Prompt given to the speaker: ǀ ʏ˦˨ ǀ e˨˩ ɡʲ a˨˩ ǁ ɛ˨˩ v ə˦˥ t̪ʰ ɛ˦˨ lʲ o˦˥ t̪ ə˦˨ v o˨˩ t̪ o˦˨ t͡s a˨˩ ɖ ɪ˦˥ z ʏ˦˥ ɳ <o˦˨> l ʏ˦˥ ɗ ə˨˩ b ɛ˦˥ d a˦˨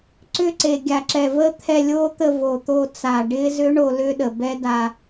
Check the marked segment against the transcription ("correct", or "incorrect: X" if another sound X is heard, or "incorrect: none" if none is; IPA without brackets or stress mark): correct